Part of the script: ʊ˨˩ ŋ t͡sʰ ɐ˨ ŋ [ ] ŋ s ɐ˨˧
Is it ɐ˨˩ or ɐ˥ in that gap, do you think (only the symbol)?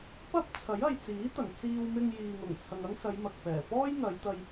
ɐ˥